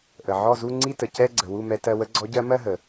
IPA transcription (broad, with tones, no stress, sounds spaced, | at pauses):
ʔ ə˩ ʕ ɔ˥˩ z u˥˧ ŋ͡ǀ i˥˧ t ə˩ c ɛ˥˧ ɡ͡ǀ ə˩ w u˥˩ m ɛ˧ t ɜ˧ w ə˧˥ ɡ͡ǀ ɔ˧˥ ɟ ɜ˧˥ m ɜ˥˧ ɦ ə˩